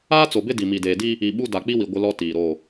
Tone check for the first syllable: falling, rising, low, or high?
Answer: high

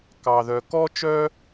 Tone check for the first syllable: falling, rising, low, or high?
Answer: low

